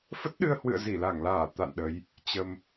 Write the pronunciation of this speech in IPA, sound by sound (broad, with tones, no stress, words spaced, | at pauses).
fə˦˥t̚ɗɨ˧ə̯hwɨ̰˧˨ə̯ zi˧˩la˧˩ŋlaː˧˩ t̪a̰˧˨nɗə˨˦j | t͡ɕə˧m